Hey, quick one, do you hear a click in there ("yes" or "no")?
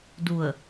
no